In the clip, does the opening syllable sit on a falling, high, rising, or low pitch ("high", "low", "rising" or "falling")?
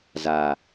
low